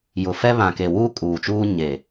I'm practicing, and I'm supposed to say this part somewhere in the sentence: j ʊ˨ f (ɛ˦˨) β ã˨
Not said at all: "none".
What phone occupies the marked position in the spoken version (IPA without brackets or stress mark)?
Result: ɛ˦